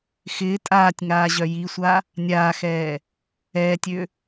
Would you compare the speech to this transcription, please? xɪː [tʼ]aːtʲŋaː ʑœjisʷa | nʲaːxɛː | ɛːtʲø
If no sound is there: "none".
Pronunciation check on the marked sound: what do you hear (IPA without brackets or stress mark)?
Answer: tʼ